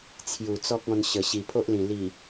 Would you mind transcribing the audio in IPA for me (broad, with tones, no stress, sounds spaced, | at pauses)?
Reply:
t͡sʰ j u˨˩ t͡s ɔ˦ k̚ ɔ̃˧ n ɕ ə˨˩ ɕ i˨˩ pʰ o˦ ʔ l ĩ˨˩ l i˨˩